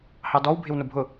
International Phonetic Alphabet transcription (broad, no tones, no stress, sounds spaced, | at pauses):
h ɑ d ɔ w bʱ ɪ w n ʊ bʱ ʊ